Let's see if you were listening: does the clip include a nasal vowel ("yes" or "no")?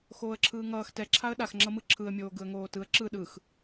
no